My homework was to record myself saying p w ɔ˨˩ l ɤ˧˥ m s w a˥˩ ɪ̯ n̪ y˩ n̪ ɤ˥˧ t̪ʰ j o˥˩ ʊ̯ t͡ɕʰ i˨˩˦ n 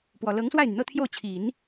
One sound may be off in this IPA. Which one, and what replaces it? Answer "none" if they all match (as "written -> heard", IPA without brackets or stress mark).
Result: m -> ŋ